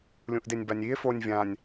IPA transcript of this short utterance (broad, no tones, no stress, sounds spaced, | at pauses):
lʲ ũ ʔ d e nʲ b a nʲ i e̯ f o nʲ vʲ ã nʲ